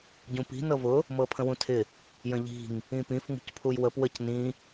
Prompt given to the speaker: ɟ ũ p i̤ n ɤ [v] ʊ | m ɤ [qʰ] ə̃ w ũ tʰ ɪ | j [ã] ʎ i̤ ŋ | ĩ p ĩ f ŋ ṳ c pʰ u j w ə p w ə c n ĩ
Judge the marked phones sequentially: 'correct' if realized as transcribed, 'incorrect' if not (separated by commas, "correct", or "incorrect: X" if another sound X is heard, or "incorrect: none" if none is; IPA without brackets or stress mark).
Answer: correct, incorrect: pʰ, incorrect: ə̃